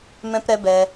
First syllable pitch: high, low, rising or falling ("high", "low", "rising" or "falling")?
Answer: high